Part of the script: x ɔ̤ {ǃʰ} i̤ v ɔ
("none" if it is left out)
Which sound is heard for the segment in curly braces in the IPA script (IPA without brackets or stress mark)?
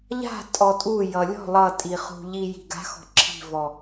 ǁʰ